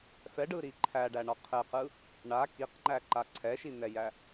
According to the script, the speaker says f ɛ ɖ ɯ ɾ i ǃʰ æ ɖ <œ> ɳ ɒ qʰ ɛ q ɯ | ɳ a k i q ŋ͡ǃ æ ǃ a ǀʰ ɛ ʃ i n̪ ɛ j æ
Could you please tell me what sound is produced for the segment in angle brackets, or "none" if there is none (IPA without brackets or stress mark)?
æ